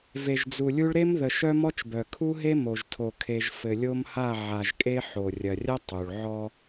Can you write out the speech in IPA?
v e˨ ʒ d͡z u˨ lʲ u˦ ɭ ɾ e˦ m ð ə˨ ʃ œ˦ m ɔ˦ t͡ʃ b œ˨ kʰ u˦ ɦ e˦ m o˨ ʒ tʰ o˨ kʰ e˨ ʒ f ɘ˨ lʲ o˦ m h a˦˨ ʕ a˨ ʒ kʼ e˦ ħ o˨ rʲ ɐ˨ rʲ ɐ˦ tˤ u˨ ɭ ʕ ɔ˦

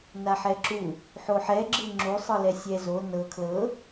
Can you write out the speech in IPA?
n a ħ ɛ ǁ u | ħ o ħ ɛ ɡ͡ǁ ɯ ŋ͡ǁ u sˤ ɯ l ɛ sʲ ɛ z o n ɤ kʰ l ɤ

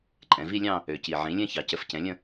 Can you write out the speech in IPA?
ǃʼ ɛ̃˩˧ v i˥˧ lʲ ɑ̃˥˧ | ø˨˩ c i˨˩ ʕ ĩ˩˥ lʲ ɛ̃˥˧ ç ɑ˩˧ c ə˩˥ f c ɛ̃˩˥ lʲ ə̃˥˧

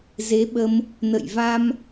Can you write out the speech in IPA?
z e˨˦ ɓ ə˧ m | n ə̰˧˨ j v a˧ m

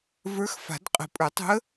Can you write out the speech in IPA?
v ə˞˧˥ x f a̤˨˩˦ d qʼ ə̤˨˩˦ pʼ ə˞˨˩˦ tˤ ṳ˧˥ ə̯

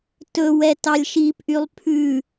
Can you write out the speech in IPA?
t ɵ w ɛ t ɑ lʲ ʃ i p ʔ y lˠ pʰ ʉ

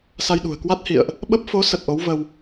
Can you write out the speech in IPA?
s a˧ j ɗ ṳ˨˩ ə̯ k w a˦˥ t̚ h ḭ˧˨ ə̯ ʔ | ɓ ə˦˥ p̚ f o˨˦ s ə˨˩ t̚ ʔ o˨˦ w v ə˧ w

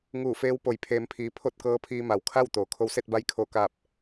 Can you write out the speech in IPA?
ŋ uː˧˩ f eː˧˥ w p o˩ j pʰ eː˩˧ m pʰ iː˩ pʰ o˥˨ t̚ k ɤː˧˥ pʰ iː˧ m a˩ w kʰ a˥˨ w t̪ oː˩˧ kʰ o˧ w s e˥˨ t̚ b a˧˥ j kʰ oː˧˩ k aː˧˩ p̚

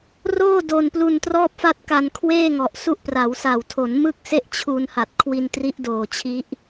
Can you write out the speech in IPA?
r oː˥˩ d o˧ n p l u˧ n t r ɔː˥˩ p̚ f a˥˩ t̚ k a˧ n kʰ w eː˥˩ ŋ ɔ˨˩ ʔ s u˦˥ ʔ p r a˩˦ w s a˨˩ w tʰ o˩˦ n m ɯ˥˩ k̚ s e˥˩ ʔ t͡ɕʰ u˧ n h a˨˩ t̚ kʰ w i˧ n t r i˦˥ ʔ d oː˨˩ t͡ɕʰ i˦˥ ʔ

